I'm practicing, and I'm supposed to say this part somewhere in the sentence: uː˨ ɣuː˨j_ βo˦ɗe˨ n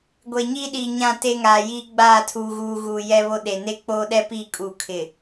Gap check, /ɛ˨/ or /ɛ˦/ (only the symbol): ɛ˦